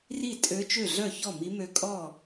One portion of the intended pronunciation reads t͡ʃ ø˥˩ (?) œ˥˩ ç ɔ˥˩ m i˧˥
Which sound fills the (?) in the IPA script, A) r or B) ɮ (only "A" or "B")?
B